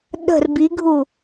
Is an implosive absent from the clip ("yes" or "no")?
no